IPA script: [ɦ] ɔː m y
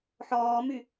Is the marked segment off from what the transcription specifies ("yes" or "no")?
yes